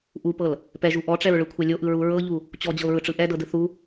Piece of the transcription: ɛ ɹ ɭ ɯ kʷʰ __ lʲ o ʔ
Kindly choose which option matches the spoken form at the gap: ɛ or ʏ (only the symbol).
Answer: ɛ